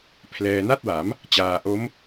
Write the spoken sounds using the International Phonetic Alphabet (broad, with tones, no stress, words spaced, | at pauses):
pʰlɛː˧ na˥˩t̚wa˩˦m | t͡ɕaː˧ ʔo˦˥m